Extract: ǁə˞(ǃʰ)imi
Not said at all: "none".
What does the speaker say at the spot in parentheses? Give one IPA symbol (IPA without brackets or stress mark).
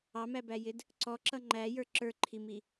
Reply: ǃʰ